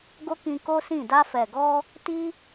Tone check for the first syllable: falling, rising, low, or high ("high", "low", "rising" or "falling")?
high